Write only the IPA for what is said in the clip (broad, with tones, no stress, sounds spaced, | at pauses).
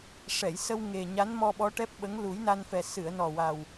ʂ ɛ˨˩˨ j s ə˧ w ŋ e˨˩ ɲ a˧˥ n m ɔ˧ ɓ ɔ˧˥ ʈ ɛ˦˥ p̚ ɓ ə˧˥ ŋ l u˨˩˦ j n a˧ n f ɛ˨˩ s ɨ˨˩˨ ə̯ n ɔ˨˩ w a˨˩ w